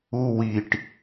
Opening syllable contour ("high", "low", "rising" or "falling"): high